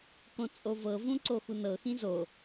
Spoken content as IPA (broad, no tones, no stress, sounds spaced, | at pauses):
k õ t͡sʼ o v ɤ v ũ ǀ o x u n ɤ x ĩ z o